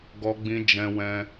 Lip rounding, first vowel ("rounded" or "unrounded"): rounded